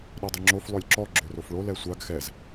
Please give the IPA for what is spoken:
ɗɔdˤɨŋ͡ǁof lˠølʲǁɔ ɡ͡ǁørofɭo lɛsʷaɡ xɛz

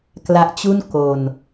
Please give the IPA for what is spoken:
kla˦˥ʔt͡ɕu˥˩n ko˧n

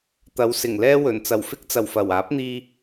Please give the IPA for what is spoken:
t̪ɐ˨˥wsɪ˨˩ŋlɛː˥wɵ˨˩n t͡sɐ˨˩wfɪ˥k̚t͡sɐ˨˩w fɐ˨˩waː˨˥p̚n̪iː˧

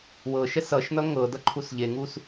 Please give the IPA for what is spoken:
wɤʃɛs ʌʃnʌ ŋɤdʌǃʰus ʎeŋus

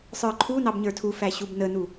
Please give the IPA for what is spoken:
sˤə˞ǃʰu nɑbɲə˞tʰu fæɕubnənu

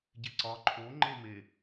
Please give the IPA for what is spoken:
ɟeǀɒ ǃʰo ŋ͡ǃeme

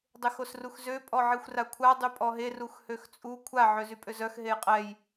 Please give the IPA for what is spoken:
dˤexosruxzø pʼɔʕixʷrakʷʰa dˤypʼɔɦer uxhøxt͡sʼu kʷʰa ʕøzypʼøzœx ɦejqʼɛj

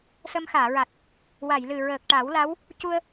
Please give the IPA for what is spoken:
sə˧mxaː˨˩˨ɹa˨˩t̚ | wa˨˩˨jlɨ˨˩ɹəː˨˩k̚ ʈa˨˩˦wla˧˥w | cu˧ə̯

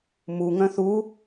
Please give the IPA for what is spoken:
muŋœ̃ θu

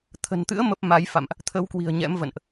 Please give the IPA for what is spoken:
t̪ʰə̤˨˩nt̪ɨ̰˧˥ə̯ mə˦˥p̚ma˨˦jfa̰˧˨mʔ | t̪ʰə˨˦wkwi̤˨˩ə̯ ɲɛ̰˧˥mvə̰˧˨nʔ

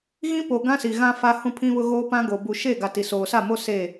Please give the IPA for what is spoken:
ɣĩ˦po˨ ɡã˦si˨ɣã˦ fa˦ hũ˦pʰĩ˦βʊ˦ɣoː˦ pã˦ɡoː˨ bu˨ʃe˦˨ɡa˨ ti˨soː˨sa˦˨mo˦ se˦˨

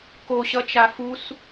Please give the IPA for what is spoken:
koɕʌt͡ʃa fus

